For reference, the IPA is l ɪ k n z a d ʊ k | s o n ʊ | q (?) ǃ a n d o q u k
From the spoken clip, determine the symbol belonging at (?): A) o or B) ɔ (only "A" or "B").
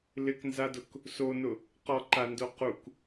B